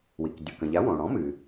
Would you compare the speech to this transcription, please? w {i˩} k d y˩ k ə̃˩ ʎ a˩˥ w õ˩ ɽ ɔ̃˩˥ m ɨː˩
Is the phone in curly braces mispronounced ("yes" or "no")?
no